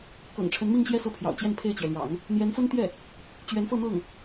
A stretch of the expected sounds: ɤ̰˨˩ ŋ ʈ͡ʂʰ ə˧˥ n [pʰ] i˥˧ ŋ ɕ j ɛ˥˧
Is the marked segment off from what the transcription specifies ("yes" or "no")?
yes